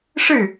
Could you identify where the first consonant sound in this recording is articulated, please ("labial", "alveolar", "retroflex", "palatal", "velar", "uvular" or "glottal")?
retroflex